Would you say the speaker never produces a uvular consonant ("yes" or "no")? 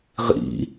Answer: no